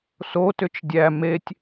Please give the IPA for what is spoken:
sotʏt͡ʃ dʲæ metʲ

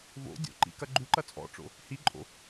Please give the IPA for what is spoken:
vo̰ dʲo̰ǃḭkɐ ɡ͡ǃuǃɐ t͡sʼɔ̰ʈ͡ʂo̰ | hiǃʼo̰

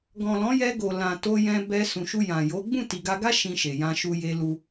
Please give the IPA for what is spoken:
ɡɔ̃˨lɔ̃˨˦jɛ˧ɡo˨ lã˨ to˧jɛ̃˧ bɛ˧ sũ˨ʃu˧ jã˨ jo˨˦ ɡ͡bũ˦˨ti˨ɡa˧ɡa˦ ʃĩ˧ʃe˨jã˧ʃu˧ je˦ lu˧

